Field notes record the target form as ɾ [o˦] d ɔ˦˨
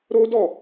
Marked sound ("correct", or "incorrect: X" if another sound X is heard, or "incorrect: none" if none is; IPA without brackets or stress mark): correct